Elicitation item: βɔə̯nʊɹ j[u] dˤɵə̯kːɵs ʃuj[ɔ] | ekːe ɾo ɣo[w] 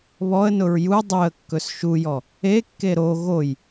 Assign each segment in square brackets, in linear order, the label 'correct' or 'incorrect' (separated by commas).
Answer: correct, correct, incorrect